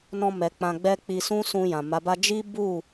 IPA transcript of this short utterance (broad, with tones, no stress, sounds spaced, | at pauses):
n ɔ̃˧ m ɛ˨ k͡p ã˧ ɡ͡b ɛ˦ k͡p i˧ s ũ˦ s ũ˧ j ã˨ m a˨˦ b a˦ d͡ʒ i˦ b u˦˨